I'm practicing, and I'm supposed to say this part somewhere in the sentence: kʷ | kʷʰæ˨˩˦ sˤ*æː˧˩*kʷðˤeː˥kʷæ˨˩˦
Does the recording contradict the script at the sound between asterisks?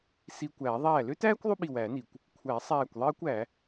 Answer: no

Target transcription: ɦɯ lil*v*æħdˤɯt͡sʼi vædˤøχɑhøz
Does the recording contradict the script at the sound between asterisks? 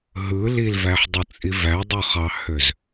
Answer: no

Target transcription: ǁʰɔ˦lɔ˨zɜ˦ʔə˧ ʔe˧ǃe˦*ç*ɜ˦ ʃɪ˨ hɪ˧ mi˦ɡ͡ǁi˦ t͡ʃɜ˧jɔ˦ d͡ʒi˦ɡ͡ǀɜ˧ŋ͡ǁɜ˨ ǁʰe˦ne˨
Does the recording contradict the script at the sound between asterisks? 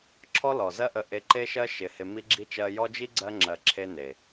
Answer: yes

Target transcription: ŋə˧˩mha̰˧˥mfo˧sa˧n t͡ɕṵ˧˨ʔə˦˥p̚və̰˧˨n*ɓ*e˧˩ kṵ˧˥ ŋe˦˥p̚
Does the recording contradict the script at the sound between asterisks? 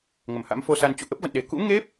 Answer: yes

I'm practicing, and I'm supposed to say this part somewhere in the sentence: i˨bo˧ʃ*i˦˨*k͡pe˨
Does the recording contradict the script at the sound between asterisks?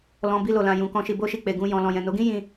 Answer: yes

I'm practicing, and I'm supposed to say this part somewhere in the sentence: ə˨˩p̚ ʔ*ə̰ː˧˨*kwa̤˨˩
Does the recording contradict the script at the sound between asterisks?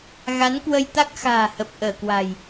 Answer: yes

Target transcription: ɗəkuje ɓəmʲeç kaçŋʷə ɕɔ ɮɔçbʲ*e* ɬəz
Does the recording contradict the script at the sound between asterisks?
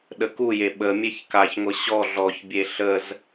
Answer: no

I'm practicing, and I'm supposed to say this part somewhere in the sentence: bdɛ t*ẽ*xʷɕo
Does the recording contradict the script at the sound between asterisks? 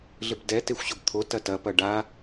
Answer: yes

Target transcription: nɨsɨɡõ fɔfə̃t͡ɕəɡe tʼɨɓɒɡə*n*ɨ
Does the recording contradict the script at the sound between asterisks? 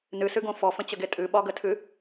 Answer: yes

